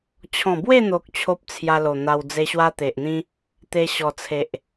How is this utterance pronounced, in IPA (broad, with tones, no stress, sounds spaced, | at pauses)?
t͡ɕʰ ɔ̃˨˩ b w e˥˧ n̪ o˨ k̚ t͡ɕʰ o˦ p̚ t͡sʰ j a˧ l o˨˩ n̪ a˧ w d͡z e˧ ɕ w a˦ t̪ e˨ ʔ n̪ ĩ˦ | t̪ e˧ ɕ ɔ˨˩ t͡sʰ e˨ ʔ